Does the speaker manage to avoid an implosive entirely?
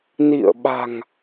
no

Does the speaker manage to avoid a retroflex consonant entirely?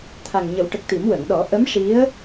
no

